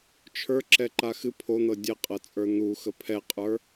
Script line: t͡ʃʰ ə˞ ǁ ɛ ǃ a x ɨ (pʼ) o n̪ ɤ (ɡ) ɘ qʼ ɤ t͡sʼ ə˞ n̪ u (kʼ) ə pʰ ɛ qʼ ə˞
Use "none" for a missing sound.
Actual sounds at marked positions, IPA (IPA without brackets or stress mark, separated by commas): pʰ, dʲ, x